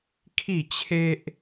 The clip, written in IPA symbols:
kʰ i˥˧ t͡ɕʰ e˦ ʔ

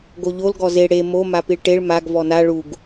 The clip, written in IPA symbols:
ɡ o ʎ o l ɡ ɔ z e ɽ e m o m a p i ɭ ʈ e ɭ m a ɡ v ɔ n a ɭ u ɡ

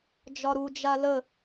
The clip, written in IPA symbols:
d͡ʒ ɒ ɾ u d͡ʒ a l ə

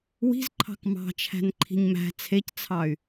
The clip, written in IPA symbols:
w i̤ z ǃʰ ɑ̤ k m ɑ̤ t͡ʃʰ æ̤ n ǃʰ i̤ ɲ m æ̤ t͡sʰ e c t͡sʰ ɑ y̯

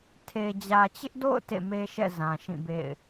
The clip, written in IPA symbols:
tʰ e˨ d͡ʑ ä˨ t͡ɕ ɪ˦ ʔ d o̰˦˨ ʊ̯ t ḛ˦˨ m e˦ ʃ ɛ̰˦˨ z ã˨ ʃ ĩ˦˨ b ḛ˦˨ ɪ̯

